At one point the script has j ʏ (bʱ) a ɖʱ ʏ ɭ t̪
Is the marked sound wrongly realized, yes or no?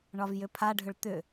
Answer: yes